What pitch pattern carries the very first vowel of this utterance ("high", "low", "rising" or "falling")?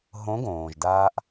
rising